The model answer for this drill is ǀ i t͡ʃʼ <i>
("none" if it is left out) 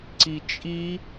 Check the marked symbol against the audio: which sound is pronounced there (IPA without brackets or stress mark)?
i